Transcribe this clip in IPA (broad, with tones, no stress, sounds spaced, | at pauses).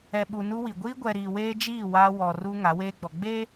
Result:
ɛ˨ ɓ u˨ n u˦ w i˨ ɡʷ iː˦ ɡʷ ɛ˨ ɾ iː˨ w eː˦ d͡ʒ iː˦˨ w aː˦ w ɔ˨ r u˦ ŋ a˨˦ w eː˦ ɡ͡b ɔ˨ ɡ͡b e˦